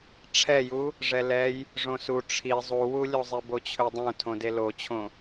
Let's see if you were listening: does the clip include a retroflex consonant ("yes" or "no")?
yes